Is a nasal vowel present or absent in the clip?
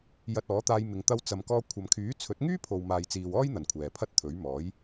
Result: absent